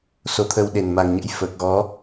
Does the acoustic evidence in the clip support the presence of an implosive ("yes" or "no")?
yes